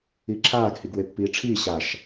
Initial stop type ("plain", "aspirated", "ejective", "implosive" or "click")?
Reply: click